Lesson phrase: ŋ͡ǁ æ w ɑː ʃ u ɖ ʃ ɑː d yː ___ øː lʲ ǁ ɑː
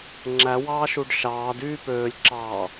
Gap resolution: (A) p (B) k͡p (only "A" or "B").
A